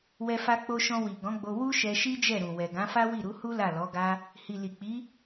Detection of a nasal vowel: present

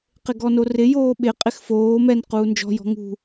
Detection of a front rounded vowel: absent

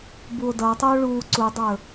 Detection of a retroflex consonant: present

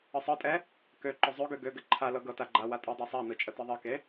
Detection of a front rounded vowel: present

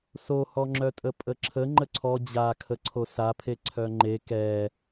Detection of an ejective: present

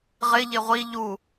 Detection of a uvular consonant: present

